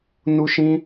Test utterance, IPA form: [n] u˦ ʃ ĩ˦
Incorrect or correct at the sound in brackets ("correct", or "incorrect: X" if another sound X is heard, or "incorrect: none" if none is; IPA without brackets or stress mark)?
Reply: correct